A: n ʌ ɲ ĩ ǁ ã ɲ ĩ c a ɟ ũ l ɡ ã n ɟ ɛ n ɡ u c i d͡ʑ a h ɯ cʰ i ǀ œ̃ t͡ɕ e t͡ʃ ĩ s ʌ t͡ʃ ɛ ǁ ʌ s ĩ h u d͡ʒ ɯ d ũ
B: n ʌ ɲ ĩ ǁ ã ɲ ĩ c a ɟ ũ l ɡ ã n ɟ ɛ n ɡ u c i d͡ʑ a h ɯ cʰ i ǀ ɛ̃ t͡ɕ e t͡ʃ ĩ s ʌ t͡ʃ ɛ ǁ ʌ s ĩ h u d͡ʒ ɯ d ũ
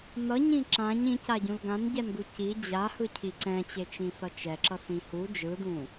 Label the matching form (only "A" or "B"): B